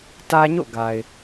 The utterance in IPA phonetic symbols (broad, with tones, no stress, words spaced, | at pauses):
tä˦ɲo̰˦˨ɡa˨ɪ̯